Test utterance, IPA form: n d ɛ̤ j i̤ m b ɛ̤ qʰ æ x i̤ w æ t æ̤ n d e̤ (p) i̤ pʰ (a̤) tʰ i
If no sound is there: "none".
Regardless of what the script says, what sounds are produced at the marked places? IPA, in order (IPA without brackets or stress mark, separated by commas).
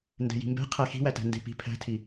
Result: p, æ̤